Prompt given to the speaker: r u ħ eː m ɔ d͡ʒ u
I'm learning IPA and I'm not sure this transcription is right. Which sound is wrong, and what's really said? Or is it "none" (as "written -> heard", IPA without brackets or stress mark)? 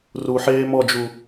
none